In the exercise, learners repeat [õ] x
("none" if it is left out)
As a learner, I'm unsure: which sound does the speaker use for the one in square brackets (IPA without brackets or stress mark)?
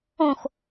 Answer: õ